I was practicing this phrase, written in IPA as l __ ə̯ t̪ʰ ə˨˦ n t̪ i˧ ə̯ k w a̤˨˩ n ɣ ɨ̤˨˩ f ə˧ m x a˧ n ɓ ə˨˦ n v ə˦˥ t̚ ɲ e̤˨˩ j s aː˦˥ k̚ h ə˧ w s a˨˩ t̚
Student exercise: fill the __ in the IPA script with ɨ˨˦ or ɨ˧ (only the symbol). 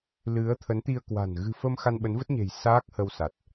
ɨ˨˦